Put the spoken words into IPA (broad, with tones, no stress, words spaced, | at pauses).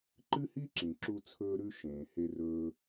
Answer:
ǃɨ˥hi˥ǁĩ˩ǁu˧ t͡sʰɵː˧ɾʉ˧ ʃẽː˩he˧rɵː˧